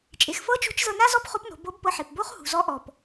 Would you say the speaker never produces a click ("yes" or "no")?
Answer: yes